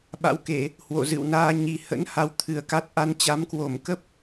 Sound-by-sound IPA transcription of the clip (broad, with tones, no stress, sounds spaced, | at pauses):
ɓ a̰˧˥ w k e˧˩˨ | h w o̰˧˨ z ɨ̰˧˨ w n aː˧ ɲ i˨˩ h ə̰˧˥ n h a˧ w t̪ʰ ɨ˨˩ ə̯ k a˦˥ t̚ ʔ a˧ n t͡ɕ a˨˦ m k w o˧˩ m k ə˦˥ p̚